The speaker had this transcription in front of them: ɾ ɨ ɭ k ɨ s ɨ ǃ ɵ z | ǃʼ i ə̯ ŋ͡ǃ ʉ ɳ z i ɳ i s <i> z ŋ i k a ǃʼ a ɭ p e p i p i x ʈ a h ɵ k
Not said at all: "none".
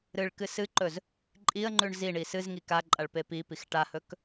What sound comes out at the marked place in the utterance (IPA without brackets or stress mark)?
ɨ